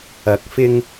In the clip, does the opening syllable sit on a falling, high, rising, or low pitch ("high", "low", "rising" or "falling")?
rising